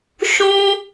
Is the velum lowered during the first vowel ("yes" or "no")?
yes